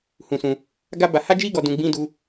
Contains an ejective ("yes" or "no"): no